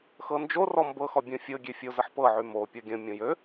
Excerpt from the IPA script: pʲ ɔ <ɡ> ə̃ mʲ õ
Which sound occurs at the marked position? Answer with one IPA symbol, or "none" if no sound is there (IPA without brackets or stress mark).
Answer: ɡʲ